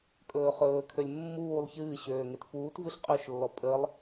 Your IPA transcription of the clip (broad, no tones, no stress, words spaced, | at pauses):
kʼɵːχɵːkʰølʲ mːuːlˠ çɨː ɕøːŋetfuːtvɨɬ qʼøʃlːɔ pʼəlˠ